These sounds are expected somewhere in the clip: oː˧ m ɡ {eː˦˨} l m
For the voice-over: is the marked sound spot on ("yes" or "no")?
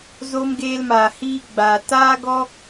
no